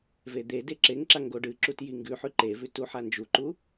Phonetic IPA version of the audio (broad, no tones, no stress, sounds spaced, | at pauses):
v e d̪ e d e ǁ e ŋ ǁ a ŋ ɡ o ɖ ɨ ǁ u t j i ŋ ɡ ʉ ħ ʉ ǃ e v ʉ t u ħ a n d͡ʒ u ǃ u